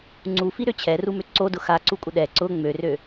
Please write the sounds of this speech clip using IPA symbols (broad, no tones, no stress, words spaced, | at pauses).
ŋ͡ǀufiɾø t͡ɕʰɛrumø ǀodʊ xaǀukʷʼə ɗɛ ǀʊ ŋ͡mørø